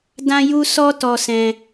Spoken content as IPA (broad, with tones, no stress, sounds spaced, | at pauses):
d ã˦ j u˦ s ɔ˦ t ɔ˧ s ɛ̃˧